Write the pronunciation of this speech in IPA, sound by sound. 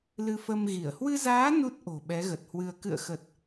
l ɨ˧ f ə˧ m ɣ i˧˩ ə̯ h w ɨ˧ z aː˨˦ n u˦˥ t̚ ʔ o̤˨˩ ɓ ɛ˨˦ ɣ ə˨˩ t̚ h w ɨ˧ ə̯ k ɨ̰˧˨ ə̯ x ə˨˩ t̚

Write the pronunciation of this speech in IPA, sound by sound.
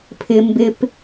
pʰ ɪ m b ɪ p

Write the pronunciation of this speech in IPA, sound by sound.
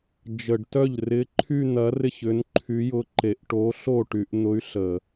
d͡ʒ ə˧˩˧ ɖ t œ˥˩ ʎ r ɪ˧˥ ǃʰ y˥˧ n̪ ɐ˧˥ r ɪ˥˩ ç ʏ˧˥ n ǃʰ y˧˥ j ʊ˧˥ ǃ e˧˩˧ ʔ ʈ o˧˥ ɬ o˥˩ ʈ y˧˩˧ ʔ n̪ ʊ˧˥ y̯ ɬ ə˧˩˧

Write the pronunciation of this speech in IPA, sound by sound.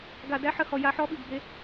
ɡ a˨ d æ˦ ħ ə˧ h ɔ˨ j a˧ ħ ɔ˧ ɓ i˨ ɡ b e˧

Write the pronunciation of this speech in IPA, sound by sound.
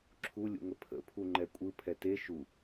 ǁʰ u lʲ ṵ ŋ ə pʰ ə̰ pʰ u ŋ͡ǃ ɛ kʷʼ ɯ pʰ ɛ t e ʃ u

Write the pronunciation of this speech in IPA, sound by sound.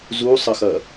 z u sˤ ə x ɐ

